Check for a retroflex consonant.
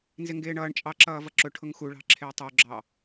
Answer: present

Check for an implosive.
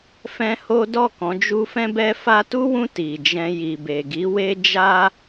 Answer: absent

